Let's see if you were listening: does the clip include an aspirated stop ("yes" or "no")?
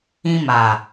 no